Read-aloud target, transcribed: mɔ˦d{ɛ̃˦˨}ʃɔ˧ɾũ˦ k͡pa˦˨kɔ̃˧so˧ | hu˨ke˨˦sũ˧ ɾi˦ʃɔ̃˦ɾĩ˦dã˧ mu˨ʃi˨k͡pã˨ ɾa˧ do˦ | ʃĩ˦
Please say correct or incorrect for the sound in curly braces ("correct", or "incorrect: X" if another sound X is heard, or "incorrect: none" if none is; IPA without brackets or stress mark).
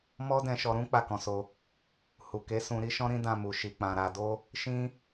incorrect: ɛ̃˧